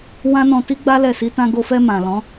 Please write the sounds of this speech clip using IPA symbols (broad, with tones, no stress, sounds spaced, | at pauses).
w ã˦ n ɔ̃˧ t i˦ ɡ͡b a˦ l ɛ˦˨ s i˧ t ã˧ ɡ o˧ f ɛ˧ m ã˨ l ɔ̃˨˦